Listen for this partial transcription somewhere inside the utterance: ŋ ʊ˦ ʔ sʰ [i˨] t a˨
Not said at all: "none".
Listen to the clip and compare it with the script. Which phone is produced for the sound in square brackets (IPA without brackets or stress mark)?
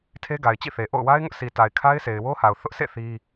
i˨